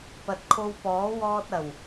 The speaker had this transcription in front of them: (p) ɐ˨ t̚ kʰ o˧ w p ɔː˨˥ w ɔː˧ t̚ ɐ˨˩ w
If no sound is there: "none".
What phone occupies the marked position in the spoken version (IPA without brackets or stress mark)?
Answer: p